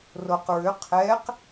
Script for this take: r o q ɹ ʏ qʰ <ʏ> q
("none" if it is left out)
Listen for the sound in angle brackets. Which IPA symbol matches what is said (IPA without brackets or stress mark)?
ɛ